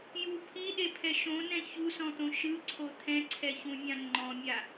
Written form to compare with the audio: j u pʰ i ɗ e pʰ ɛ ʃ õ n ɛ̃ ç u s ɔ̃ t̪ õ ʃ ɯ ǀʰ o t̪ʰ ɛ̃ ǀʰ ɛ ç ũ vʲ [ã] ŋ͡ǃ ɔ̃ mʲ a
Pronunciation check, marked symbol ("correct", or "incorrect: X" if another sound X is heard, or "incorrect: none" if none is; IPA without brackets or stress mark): correct